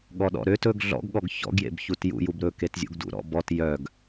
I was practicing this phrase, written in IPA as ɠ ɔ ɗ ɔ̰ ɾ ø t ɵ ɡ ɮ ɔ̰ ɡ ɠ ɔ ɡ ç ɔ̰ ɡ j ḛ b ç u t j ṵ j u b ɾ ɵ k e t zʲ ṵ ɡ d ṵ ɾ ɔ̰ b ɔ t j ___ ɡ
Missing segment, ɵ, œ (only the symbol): œ